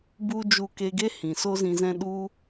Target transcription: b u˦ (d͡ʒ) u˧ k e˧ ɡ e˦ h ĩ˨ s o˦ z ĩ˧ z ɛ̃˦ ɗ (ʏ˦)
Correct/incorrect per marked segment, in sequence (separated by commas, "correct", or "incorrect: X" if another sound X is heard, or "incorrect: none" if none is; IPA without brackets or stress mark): correct, incorrect: u˦